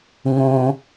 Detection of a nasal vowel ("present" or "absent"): present